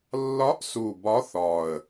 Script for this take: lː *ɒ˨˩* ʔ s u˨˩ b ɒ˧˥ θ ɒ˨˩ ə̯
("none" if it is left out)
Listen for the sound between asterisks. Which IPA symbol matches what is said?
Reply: ɒ˧˥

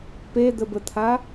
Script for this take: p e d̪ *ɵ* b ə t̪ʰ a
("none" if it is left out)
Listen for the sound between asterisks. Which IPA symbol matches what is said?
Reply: ə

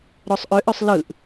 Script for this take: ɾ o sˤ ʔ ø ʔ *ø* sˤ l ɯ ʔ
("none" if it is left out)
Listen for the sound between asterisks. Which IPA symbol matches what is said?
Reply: ø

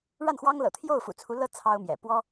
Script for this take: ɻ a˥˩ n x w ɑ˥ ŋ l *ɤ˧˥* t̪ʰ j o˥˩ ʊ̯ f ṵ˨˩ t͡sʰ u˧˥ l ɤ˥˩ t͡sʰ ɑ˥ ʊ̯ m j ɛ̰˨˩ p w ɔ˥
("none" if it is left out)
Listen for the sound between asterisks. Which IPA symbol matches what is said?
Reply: ɤ̰˨˩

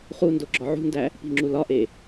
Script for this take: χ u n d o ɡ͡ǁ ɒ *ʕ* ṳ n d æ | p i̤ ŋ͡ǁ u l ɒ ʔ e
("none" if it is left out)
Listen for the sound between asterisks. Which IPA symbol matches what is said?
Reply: ʕ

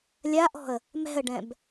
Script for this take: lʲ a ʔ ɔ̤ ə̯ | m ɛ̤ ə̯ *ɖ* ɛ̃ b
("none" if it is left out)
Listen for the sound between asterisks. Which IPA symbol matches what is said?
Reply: ɖ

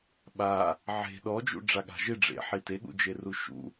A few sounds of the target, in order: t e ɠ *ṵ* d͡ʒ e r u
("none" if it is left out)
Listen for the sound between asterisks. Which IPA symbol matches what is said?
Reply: ṵ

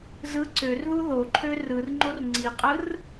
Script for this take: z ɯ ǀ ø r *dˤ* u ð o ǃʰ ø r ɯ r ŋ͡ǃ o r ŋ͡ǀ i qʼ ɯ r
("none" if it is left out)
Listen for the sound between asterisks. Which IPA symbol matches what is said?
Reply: ð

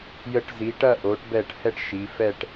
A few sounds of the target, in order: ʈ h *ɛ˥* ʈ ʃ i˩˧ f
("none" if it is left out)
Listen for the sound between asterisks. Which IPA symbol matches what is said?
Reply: ɛ˥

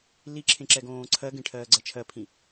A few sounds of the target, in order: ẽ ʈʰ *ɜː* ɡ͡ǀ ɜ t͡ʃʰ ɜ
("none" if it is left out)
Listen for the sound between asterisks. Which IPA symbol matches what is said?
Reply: ɜː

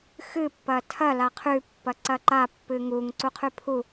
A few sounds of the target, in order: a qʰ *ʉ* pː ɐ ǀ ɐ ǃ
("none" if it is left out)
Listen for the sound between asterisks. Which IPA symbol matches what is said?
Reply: ʉ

